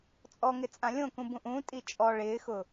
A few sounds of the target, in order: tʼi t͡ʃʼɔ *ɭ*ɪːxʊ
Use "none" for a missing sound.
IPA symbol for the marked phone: ɭ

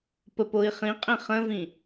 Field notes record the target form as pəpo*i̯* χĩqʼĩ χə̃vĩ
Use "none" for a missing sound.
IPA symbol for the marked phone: i̯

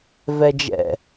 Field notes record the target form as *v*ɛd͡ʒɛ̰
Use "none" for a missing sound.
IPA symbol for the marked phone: v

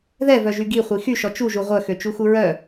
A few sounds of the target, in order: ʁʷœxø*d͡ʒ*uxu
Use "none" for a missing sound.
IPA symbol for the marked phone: t͡ʃ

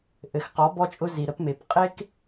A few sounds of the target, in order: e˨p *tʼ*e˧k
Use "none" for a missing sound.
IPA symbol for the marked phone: qʼ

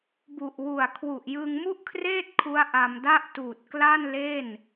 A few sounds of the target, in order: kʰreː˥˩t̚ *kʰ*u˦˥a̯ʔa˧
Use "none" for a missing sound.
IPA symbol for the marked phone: kʰ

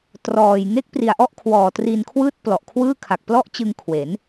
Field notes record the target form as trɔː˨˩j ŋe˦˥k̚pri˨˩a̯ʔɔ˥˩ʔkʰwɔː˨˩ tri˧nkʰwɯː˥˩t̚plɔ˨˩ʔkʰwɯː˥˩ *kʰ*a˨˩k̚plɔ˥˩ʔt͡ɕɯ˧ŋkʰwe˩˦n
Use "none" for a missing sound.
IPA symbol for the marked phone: kʰ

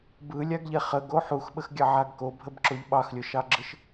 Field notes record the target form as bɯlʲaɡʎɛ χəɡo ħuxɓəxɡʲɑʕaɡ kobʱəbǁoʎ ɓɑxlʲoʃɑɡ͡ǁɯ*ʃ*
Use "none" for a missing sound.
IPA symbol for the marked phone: ʃ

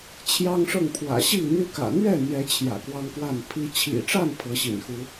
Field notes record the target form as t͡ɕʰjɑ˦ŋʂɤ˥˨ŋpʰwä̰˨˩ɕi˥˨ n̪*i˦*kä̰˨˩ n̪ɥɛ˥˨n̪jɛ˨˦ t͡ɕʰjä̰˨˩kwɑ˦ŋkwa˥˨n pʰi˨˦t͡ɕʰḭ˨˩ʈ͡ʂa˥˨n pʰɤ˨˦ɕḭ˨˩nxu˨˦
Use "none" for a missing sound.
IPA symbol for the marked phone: y˦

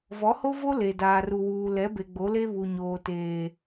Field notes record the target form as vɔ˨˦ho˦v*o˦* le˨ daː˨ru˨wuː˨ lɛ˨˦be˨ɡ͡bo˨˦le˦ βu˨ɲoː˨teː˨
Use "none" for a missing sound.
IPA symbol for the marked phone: o˦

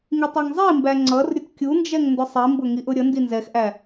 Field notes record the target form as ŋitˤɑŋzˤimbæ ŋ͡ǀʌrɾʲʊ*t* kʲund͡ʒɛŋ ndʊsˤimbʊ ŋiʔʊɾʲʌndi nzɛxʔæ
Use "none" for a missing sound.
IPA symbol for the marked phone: t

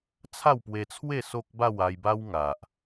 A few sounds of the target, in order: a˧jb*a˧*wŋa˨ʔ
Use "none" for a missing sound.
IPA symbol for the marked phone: a˦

